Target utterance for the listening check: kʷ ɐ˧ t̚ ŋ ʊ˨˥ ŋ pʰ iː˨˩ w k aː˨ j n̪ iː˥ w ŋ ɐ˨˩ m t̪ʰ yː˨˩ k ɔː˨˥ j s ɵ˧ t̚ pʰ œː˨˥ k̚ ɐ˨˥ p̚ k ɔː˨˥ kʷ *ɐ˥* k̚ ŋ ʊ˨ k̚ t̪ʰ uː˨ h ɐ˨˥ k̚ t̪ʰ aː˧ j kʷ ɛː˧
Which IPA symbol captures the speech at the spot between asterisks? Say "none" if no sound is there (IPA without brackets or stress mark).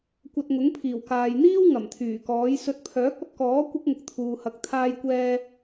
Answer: ɐ˥